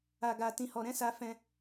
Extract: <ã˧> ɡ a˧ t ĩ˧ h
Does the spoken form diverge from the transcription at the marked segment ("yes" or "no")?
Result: yes